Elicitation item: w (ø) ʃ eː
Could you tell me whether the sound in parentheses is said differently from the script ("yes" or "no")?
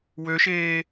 no